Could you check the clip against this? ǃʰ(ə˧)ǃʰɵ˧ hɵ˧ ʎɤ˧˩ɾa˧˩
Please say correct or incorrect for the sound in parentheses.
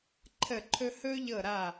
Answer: incorrect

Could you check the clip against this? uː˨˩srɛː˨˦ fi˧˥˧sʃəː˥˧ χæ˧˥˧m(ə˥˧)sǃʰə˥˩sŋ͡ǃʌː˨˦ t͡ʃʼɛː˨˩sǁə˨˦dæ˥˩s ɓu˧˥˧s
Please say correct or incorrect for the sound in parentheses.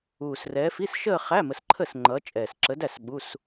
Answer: incorrect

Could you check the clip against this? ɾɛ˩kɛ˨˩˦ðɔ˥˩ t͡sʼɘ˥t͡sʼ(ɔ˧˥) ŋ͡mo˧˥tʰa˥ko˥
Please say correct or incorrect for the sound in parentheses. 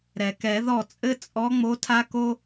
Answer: correct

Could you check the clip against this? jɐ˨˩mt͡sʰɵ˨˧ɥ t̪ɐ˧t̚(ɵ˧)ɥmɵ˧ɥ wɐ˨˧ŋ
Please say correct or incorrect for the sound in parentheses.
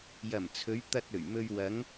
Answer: incorrect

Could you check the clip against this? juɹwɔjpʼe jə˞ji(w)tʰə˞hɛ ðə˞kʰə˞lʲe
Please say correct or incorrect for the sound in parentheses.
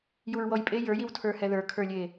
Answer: correct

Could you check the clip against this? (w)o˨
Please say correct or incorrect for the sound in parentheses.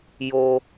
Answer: incorrect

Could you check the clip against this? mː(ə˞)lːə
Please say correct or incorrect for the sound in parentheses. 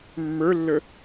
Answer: correct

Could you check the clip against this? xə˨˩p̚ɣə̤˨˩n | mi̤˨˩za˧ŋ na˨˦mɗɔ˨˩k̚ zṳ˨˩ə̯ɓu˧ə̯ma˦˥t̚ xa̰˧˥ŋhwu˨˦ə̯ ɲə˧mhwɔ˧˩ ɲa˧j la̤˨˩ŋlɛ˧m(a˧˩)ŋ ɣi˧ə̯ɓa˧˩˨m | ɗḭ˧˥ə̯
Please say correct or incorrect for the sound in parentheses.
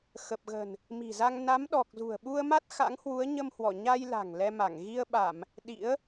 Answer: correct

